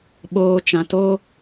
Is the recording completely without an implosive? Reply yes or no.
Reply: no